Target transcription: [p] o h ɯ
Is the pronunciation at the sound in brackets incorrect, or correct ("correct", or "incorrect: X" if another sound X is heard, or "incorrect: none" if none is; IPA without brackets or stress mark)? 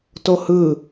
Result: incorrect: t